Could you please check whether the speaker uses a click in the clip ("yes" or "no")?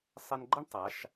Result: yes